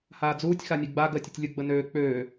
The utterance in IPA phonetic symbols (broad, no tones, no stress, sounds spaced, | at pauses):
h aː d͡z uː tʲ x a nʲ ɜ ɡ͡b a ɡ ɜ tʲ ə tʲ lʲ ʊ ɡ͡b ə n øː k͡p øː